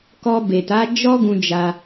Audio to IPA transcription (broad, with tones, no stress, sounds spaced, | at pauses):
k ɔ˧ b e˨ t a˨˦ d͡ʒ ɔ˦ ɡ ũ˧ d͡ʒ a˧